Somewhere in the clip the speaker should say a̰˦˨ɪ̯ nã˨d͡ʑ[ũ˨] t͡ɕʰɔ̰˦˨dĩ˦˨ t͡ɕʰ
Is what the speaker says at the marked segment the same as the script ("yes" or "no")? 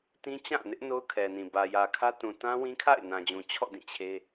yes